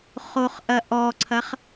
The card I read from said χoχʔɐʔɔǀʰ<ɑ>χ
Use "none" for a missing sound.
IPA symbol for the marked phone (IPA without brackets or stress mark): ɐ